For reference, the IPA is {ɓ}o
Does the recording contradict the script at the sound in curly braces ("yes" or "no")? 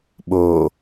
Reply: no